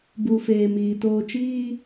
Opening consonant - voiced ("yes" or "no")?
yes